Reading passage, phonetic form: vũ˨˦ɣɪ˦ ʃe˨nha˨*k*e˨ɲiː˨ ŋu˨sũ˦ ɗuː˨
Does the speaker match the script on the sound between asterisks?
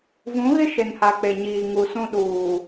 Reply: no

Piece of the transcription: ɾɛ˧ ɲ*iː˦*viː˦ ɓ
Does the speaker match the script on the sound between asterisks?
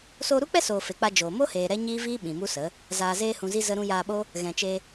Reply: yes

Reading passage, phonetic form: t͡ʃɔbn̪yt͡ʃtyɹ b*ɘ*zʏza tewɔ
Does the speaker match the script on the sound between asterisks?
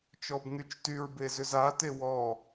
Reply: no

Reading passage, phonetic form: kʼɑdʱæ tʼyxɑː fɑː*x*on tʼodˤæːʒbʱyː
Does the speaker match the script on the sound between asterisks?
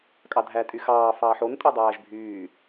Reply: no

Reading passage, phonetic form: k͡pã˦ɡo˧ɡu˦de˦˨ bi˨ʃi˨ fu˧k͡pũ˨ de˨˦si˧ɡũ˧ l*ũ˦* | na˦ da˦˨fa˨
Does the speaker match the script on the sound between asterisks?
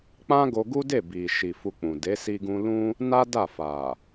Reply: yes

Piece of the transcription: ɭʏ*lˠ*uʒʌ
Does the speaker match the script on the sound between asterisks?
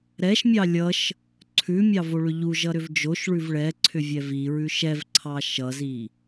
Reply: no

